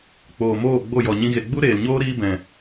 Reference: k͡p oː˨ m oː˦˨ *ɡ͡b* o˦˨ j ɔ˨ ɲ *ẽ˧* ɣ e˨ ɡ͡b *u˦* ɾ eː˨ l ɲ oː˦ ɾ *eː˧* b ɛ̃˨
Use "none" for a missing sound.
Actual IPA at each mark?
ɡ͡b, ĩ˧, u˦, iː˧

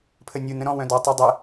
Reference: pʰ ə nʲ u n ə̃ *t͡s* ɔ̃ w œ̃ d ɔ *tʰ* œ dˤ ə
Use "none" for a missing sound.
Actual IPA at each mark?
ɾ, tˤ

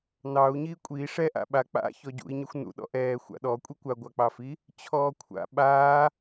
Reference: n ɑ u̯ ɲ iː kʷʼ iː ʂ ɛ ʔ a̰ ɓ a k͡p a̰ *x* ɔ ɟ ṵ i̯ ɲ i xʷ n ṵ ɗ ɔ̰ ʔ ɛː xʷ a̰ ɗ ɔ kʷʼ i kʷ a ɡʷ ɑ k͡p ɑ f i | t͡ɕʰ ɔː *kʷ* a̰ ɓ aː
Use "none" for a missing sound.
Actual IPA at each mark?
ç, kʷʰ

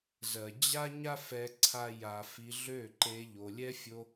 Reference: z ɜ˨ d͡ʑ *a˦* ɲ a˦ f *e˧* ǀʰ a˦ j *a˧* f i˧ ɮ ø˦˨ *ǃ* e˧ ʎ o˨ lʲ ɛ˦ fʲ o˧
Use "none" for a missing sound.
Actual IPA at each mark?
a˦, ɛ˧, a˧, ǃ

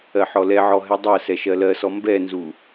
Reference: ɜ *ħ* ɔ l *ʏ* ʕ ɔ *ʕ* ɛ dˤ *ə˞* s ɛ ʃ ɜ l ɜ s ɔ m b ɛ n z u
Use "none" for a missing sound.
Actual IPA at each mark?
ħ, ɛ, ɦ, ɜ

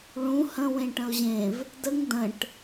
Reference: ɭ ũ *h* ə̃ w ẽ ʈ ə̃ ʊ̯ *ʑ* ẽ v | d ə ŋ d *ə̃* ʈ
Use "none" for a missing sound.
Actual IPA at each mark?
h, ʑ, ə̃

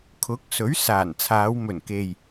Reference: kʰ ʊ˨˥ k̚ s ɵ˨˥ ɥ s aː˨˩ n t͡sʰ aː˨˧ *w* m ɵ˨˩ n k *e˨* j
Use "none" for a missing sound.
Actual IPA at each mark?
w, e˨

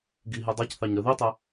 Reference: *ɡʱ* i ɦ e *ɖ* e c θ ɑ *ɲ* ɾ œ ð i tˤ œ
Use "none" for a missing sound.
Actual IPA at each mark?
ɡ, dˤ, ɲ

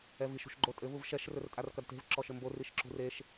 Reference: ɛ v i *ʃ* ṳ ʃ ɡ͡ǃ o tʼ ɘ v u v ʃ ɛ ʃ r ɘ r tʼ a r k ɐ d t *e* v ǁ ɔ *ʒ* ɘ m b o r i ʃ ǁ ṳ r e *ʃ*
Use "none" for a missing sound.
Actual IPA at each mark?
ʃ, e̤, ʃ, ʃ

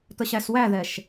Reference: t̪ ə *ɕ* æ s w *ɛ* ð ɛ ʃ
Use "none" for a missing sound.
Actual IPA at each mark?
ɕ, æ

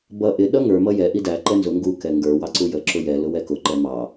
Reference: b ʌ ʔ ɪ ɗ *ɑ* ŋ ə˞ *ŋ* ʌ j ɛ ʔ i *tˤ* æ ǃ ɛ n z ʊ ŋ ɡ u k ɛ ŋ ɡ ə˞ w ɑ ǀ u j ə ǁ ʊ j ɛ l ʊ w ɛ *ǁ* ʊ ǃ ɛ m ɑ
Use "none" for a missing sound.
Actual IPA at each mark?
ʌ, m, d, k

